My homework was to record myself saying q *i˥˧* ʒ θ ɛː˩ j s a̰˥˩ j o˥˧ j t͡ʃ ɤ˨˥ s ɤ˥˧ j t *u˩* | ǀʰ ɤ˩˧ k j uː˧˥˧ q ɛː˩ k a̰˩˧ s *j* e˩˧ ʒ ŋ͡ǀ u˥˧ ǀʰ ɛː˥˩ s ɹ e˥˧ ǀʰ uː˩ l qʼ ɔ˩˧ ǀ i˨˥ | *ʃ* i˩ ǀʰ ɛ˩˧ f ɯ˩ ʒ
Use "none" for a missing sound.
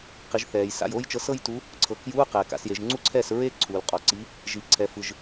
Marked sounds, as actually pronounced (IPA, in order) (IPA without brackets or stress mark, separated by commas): i˩˧, u˨˥, j, ʒ